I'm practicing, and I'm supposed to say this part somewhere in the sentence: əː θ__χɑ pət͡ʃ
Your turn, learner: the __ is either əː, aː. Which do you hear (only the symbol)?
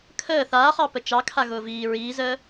aː